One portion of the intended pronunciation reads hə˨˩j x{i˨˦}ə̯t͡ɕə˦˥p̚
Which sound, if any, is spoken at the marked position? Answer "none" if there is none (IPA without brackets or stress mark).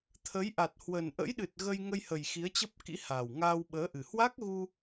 i˨˦